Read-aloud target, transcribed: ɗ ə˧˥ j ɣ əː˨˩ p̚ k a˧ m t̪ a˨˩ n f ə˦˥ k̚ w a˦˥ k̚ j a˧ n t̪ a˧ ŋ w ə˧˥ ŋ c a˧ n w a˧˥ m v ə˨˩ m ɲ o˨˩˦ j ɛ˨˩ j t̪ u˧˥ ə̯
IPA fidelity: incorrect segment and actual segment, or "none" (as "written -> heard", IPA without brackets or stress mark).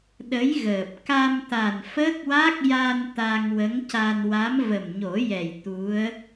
none